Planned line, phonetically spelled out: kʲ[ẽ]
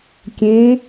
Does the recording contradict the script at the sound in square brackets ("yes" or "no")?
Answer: no